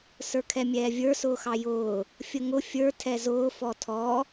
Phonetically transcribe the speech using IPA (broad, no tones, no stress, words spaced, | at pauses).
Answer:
sə˞kʰɛmʲɛːvʲə˞ sʊːxɑjʊː | fʲəŋʊ fʲə˞ tʰɛzʊː fɔtʰɔ